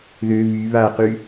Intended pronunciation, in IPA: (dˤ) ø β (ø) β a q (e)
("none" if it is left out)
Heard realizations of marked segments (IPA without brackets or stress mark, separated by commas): ð, y, y